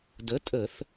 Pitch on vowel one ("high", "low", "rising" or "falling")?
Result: rising